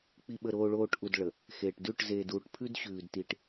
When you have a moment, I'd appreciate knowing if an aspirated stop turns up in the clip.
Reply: yes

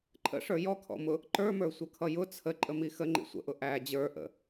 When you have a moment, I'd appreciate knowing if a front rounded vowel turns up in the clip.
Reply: no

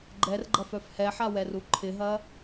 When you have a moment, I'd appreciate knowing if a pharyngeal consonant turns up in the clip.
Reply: yes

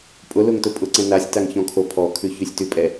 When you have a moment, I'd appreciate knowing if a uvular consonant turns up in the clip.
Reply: no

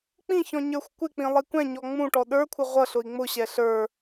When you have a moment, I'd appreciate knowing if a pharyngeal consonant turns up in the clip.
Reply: no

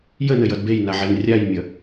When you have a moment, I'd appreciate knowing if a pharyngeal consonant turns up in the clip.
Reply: yes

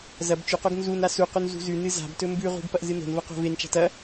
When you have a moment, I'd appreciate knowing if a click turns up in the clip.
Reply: no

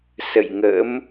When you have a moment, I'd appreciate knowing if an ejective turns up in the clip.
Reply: no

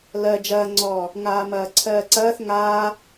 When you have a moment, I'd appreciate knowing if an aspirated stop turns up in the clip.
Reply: yes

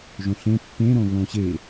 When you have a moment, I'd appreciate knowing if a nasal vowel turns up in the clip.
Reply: yes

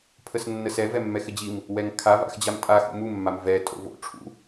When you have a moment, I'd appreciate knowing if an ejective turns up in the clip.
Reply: yes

